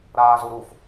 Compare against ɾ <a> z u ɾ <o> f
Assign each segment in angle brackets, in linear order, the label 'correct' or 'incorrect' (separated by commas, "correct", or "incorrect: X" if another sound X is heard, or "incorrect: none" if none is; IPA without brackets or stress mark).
incorrect: aː, incorrect: u